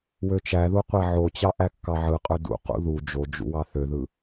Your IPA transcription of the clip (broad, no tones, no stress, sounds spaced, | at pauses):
w ø t͡ʃ æ ð u qʷ æ ʕ o t͡ɕ ɑ ʔ æ kː ɑ ʕ ɯ qʼ ø d ṵ q ṵ ð u d͡ʒ o d͡ʒ ṵ w ɑ θ ø ð ɯ